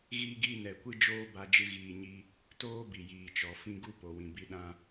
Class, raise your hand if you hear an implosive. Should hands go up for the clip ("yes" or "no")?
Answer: yes